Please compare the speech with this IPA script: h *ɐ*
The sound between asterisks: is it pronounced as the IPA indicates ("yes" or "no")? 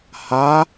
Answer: no